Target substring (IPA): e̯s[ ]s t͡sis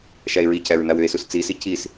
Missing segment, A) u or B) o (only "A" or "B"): A